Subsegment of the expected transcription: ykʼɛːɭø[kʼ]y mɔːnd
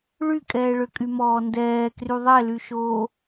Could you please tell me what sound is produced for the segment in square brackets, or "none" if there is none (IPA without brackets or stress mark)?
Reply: kʼ